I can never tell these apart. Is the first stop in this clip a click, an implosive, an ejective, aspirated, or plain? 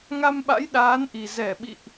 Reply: implosive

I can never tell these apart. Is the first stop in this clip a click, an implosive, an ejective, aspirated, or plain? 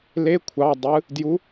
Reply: aspirated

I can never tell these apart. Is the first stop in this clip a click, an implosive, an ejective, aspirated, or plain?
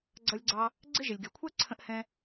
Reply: click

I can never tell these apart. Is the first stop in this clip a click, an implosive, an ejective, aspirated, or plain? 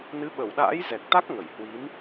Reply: implosive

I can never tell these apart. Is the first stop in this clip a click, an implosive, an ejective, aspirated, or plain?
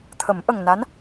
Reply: aspirated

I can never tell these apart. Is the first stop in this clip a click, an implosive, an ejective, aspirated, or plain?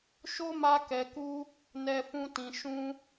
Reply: plain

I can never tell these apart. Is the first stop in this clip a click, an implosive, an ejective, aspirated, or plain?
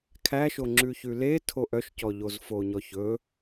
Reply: aspirated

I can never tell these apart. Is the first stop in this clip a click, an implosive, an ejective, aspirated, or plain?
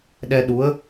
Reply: implosive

